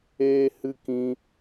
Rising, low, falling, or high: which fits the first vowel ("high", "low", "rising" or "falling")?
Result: high